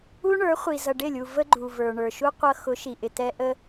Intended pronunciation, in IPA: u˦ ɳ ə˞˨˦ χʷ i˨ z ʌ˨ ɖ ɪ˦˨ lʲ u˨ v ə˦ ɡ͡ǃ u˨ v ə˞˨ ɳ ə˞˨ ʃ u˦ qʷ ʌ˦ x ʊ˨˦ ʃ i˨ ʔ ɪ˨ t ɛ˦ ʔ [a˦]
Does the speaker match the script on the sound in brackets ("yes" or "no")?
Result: no